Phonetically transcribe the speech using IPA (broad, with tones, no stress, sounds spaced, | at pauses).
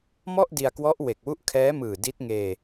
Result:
m ɔ˥˩ ʔ d i˧ a̯ k w ɔ˦˥ ʔ w e˨˩ k̚ w u˦˥ ʔ kʰ ɛː˦˥ m ɯː˨˩ d i˦˥ t̚ ŋ eː˧